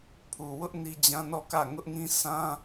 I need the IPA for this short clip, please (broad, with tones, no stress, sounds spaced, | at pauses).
pʰ u˨ w ʊ˦ ʔ n i˦ d͡ʑ ã˦ n ɔ˦˨ k ä˦˨ ŋ ʊ˦ ʔ ŋ ĩ˦ s ã˦